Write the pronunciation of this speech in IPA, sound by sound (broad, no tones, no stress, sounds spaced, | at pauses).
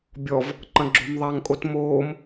bʲ ɔ v | ǃ ɐ̃ ɡ͡ǁ o̤ m ðˤ a ŋ kʼ o t m oː m